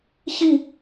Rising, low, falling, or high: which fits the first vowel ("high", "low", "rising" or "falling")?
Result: falling